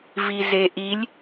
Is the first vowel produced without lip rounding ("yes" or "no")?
yes